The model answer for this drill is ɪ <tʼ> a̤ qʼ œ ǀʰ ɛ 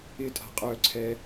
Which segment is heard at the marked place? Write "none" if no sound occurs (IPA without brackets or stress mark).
tʼ